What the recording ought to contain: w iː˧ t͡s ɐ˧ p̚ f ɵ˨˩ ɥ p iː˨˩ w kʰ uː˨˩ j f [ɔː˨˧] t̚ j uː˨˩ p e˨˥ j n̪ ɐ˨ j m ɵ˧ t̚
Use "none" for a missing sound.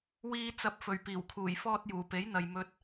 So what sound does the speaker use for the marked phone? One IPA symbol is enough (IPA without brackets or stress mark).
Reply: ɔː˧